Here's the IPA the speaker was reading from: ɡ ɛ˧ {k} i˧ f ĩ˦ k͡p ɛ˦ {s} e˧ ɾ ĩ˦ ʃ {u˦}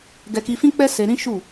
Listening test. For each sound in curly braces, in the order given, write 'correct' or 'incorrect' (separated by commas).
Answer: correct, correct, incorrect